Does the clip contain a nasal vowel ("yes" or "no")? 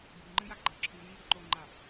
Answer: no